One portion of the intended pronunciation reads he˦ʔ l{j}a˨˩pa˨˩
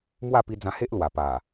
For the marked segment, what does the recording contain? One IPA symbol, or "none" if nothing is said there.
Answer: w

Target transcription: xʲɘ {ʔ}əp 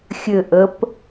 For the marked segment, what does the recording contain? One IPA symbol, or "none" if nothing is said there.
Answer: ʔ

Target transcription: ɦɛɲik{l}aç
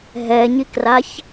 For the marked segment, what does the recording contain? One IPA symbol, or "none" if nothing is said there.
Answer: r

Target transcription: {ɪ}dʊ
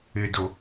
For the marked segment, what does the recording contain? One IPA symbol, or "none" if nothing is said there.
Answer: ɪ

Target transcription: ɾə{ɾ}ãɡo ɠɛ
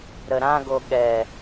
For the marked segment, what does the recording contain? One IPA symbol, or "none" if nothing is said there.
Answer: ɾ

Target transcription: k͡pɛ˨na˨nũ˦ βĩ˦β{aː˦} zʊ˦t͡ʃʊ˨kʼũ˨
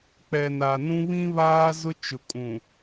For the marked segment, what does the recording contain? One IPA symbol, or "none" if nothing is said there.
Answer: aː˦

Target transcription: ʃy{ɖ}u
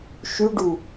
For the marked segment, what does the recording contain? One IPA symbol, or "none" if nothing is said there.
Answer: ɖ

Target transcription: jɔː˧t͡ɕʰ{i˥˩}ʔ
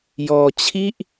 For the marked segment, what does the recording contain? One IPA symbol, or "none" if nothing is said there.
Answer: i˥˩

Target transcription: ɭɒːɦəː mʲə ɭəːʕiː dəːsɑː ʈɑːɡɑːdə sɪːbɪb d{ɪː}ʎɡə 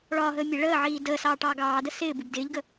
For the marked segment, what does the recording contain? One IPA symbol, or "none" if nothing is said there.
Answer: ɪː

